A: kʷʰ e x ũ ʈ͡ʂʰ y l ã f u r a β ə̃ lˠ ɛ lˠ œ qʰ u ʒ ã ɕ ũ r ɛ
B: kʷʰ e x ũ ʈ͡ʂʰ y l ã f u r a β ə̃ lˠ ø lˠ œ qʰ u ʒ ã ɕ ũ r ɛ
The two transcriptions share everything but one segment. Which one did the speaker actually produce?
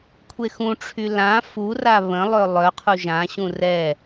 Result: B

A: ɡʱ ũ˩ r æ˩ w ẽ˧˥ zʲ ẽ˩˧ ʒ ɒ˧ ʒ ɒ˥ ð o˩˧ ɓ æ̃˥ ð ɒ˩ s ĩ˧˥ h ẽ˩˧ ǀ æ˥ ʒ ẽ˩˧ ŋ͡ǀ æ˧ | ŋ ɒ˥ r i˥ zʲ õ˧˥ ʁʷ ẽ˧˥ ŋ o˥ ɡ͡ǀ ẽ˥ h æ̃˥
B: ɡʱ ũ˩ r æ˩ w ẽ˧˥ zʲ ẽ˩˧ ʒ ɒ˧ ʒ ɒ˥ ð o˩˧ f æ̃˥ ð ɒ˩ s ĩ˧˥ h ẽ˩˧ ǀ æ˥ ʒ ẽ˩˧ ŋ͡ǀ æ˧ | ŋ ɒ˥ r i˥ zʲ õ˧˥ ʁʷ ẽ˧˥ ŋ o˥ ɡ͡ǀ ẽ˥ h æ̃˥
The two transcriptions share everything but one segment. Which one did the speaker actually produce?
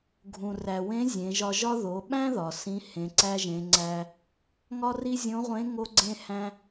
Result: A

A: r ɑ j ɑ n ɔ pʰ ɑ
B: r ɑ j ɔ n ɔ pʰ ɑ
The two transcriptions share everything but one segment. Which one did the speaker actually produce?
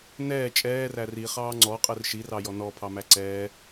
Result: B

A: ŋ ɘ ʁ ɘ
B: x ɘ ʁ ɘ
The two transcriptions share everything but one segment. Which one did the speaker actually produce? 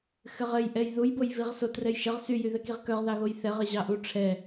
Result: B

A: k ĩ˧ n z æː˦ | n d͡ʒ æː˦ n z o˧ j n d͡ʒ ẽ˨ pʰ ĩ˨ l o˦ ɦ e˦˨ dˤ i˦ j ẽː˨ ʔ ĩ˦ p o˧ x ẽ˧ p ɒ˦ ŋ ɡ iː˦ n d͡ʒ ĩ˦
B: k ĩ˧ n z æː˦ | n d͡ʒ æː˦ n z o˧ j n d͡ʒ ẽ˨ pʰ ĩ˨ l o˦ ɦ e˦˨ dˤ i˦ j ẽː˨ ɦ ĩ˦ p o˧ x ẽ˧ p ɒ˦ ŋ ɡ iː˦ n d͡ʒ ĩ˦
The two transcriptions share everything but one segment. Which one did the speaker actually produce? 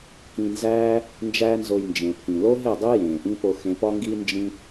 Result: A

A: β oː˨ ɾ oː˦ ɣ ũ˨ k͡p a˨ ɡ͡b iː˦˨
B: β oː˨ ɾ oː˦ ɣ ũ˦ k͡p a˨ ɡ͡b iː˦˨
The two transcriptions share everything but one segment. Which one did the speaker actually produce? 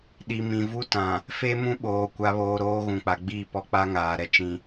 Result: A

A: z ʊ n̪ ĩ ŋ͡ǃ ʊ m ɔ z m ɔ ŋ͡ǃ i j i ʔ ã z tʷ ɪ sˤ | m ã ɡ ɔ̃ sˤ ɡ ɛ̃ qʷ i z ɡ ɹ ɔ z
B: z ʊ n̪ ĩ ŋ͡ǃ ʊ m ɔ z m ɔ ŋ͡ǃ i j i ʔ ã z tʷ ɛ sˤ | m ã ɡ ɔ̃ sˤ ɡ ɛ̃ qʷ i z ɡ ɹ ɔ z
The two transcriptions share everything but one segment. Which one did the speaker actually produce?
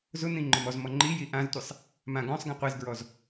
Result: A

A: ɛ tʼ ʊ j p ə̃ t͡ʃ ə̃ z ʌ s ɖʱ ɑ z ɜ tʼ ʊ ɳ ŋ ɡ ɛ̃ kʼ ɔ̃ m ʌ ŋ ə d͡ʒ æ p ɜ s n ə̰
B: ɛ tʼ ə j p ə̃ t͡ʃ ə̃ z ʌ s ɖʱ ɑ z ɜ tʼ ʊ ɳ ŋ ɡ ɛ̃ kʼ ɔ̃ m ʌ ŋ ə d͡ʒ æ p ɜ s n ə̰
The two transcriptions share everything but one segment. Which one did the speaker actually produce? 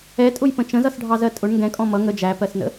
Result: A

